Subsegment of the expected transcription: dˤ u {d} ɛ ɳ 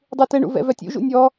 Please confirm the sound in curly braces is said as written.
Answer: no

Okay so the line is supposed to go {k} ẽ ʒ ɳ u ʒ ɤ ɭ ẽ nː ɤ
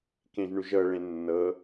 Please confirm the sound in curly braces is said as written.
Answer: yes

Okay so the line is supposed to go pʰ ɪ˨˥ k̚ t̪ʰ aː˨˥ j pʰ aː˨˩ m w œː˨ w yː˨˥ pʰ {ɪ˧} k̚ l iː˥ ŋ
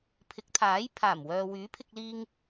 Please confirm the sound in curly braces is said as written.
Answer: yes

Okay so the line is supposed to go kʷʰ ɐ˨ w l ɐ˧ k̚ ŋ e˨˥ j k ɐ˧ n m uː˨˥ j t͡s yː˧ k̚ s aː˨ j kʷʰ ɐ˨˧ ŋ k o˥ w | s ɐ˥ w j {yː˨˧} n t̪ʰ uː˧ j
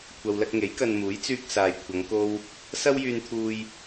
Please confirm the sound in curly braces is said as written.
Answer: no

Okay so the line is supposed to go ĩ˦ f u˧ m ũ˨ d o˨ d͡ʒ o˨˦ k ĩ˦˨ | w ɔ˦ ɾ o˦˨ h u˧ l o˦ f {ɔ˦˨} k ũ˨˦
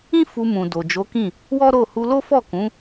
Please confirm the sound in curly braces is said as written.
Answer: yes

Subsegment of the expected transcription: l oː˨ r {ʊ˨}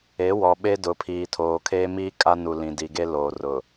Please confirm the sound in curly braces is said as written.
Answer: yes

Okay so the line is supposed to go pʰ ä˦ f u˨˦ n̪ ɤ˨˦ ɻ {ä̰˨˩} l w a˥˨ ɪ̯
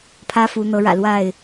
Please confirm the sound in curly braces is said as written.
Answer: yes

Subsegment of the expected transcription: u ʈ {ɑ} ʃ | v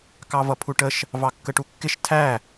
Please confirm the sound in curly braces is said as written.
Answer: no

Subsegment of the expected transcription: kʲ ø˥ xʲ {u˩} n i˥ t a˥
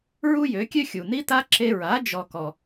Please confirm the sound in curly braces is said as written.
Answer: yes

